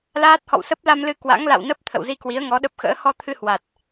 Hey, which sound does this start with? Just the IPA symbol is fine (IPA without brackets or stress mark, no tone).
l